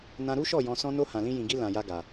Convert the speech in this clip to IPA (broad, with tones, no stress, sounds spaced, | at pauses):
n ã˦ ɾ u˦ ʃ ɔ˦˨ j ɔ̃˧ s ɔ̃˦ n o˦ h ã˧ l ĩ˦ j ĩ˧ ɡ i˦ l ã˧ j a˦ ɡ a˧